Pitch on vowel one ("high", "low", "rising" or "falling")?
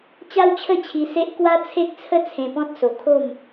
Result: high